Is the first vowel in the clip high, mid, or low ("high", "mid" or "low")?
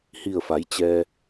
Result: high